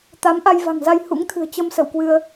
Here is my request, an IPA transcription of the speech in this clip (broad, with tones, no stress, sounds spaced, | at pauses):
t̪ a˨˦ m ʔ a˧ j v a̤˨˩ ŋ z a˧ j h ṵ˧˥ ŋ t̪ʰ ɨ̤˨˩ ə̯ t͡ɕ ə˧ m s ə̰˧˨ w k w ɨ˧ ə̯